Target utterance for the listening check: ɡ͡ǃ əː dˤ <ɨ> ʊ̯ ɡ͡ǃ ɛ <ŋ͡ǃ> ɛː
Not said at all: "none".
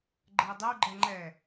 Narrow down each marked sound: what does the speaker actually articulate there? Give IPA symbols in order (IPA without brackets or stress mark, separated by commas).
ɛ, ŋ͡ǃ